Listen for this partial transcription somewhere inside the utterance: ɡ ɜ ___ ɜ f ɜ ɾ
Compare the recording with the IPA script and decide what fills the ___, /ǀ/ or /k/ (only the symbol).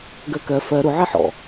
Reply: k